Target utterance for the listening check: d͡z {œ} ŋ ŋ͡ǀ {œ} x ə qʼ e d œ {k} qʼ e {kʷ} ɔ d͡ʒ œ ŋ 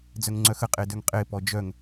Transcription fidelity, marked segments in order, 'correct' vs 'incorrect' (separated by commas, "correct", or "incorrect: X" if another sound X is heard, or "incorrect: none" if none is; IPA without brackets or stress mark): correct, correct, incorrect: ŋ, incorrect: p